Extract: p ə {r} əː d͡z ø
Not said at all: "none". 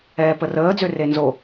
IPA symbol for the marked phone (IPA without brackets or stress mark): r